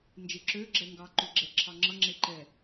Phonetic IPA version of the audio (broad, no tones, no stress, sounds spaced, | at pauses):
n d͡ʒ e ǁ ø ɡ͡ǁ ɛ ŋ ɡ ɑ ǃ ø ɡ͡ǁ ɛ ǁʰ ɑ ŋ͡ǁ ʌ ŋ͡ǁ e ǃ ɛ